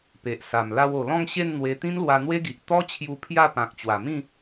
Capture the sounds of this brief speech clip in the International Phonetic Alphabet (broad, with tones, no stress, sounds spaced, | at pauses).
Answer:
p e˨ ʔ s a˨˩ m l a˧ w o˨˩ l ɔ̃˥˧ ŋ ɕ e˥˧ n n̪ w e˧ t̪ ĩ˦ n l w a˧ n̪ w e˦ ɡ i˨ ʔ t̪ ɔ˦ t͡ɕʰ j u˧ pʰ j a˥˧ p ã˨ k̚ t͡ɕ w a˨˩ m ĩ˥˧